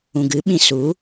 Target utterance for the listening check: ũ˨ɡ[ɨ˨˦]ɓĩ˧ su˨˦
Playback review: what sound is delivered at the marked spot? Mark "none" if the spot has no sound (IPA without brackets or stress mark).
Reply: ɨ˨˦